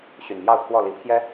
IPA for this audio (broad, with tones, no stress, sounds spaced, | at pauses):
ɕ y˨˩ n m j ɑ˥˨ ʊ̯ kʰ w ɔ˥˨ l i˨˦ pʰ j ɛ˦